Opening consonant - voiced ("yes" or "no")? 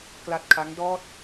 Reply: no